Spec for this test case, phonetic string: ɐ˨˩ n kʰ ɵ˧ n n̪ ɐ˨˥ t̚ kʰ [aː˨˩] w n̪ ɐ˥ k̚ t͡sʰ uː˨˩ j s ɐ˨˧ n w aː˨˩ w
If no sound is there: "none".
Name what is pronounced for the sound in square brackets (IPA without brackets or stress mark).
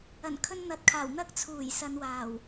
aː˨˩